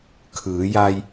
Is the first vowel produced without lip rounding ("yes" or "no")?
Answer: yes